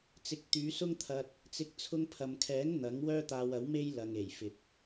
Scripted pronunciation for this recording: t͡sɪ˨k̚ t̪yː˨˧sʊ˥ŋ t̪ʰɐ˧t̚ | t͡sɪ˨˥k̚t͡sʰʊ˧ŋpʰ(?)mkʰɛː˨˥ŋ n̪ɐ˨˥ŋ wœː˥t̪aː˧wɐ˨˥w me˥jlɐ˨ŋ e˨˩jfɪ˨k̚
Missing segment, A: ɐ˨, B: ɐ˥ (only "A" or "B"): A